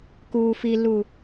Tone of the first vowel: low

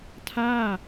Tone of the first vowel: falling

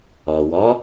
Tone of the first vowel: low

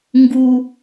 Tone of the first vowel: high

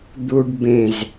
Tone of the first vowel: high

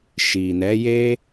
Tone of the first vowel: low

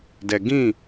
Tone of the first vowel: low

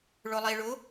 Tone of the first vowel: low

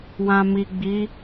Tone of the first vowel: low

